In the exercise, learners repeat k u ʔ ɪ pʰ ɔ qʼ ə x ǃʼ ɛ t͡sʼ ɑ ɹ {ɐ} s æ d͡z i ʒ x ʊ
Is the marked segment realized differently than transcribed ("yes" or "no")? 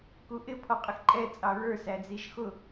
yes